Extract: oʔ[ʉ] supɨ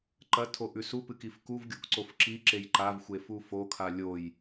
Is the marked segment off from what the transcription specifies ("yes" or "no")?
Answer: no